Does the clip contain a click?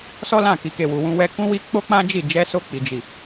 no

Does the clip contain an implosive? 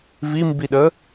yes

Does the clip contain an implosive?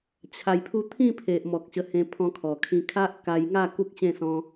no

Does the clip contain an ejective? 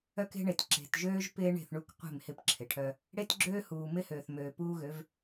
no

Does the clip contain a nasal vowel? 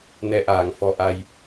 no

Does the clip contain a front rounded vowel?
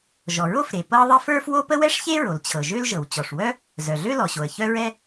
yes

